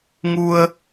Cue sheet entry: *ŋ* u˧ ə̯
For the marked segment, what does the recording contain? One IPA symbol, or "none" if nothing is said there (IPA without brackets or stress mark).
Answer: ŋ